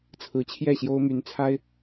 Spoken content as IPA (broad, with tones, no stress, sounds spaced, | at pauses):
t͡sʰ ɹ̩˧˥ t͡ɕʰ j ɛ˥˩ ɕ j o˥ ʊ̯ m y˧˥ n t͡sʰ a˥ ɪ̯